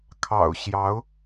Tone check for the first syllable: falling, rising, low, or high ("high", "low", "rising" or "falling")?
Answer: low